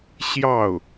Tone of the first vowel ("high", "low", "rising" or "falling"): falling